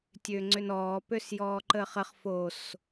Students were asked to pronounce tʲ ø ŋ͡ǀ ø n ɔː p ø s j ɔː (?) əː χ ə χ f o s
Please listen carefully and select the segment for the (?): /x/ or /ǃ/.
ǃ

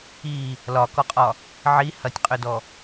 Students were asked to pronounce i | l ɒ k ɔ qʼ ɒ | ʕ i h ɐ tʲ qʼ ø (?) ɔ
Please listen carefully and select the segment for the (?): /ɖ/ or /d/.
d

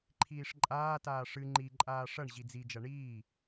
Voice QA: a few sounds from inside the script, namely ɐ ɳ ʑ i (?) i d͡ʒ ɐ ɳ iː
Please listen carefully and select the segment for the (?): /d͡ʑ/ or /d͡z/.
d͡z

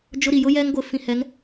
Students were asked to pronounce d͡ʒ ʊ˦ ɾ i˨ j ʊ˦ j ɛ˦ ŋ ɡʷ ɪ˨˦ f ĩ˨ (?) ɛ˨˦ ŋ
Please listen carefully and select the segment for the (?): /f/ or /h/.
h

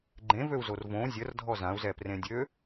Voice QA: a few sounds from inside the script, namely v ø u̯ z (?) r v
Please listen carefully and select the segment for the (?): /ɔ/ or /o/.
o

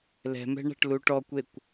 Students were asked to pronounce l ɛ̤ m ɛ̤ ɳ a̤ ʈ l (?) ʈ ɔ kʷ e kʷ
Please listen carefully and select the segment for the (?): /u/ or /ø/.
u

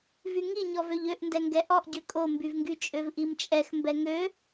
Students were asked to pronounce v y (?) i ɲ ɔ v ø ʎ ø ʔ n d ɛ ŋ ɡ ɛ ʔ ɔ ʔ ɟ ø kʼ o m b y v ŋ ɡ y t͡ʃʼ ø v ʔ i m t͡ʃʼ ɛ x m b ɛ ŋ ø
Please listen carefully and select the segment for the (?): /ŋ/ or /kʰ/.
ŋ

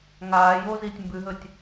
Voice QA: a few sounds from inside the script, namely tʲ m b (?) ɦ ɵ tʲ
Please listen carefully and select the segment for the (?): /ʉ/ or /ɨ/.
ʉ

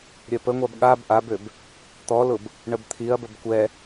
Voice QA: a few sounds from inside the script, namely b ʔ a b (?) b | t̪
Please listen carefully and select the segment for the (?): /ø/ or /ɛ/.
ø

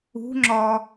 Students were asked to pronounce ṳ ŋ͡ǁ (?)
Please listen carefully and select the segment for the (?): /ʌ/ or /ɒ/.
ɒ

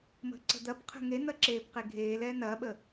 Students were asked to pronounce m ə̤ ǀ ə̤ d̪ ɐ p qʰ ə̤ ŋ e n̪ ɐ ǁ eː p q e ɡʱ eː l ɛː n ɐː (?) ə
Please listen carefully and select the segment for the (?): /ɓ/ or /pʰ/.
ɓ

